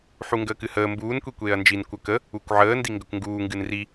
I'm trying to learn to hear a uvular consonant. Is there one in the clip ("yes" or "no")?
no